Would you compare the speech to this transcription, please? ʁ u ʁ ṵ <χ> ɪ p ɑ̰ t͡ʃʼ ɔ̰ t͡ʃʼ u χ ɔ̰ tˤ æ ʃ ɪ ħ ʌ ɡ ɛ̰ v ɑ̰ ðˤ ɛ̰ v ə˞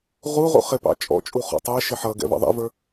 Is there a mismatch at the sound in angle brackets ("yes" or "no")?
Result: no